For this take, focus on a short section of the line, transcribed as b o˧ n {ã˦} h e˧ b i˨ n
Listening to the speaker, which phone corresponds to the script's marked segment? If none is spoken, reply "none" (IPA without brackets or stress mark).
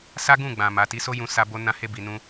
ã˧